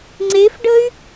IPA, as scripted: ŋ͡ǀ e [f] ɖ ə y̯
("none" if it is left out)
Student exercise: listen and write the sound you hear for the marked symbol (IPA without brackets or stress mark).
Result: f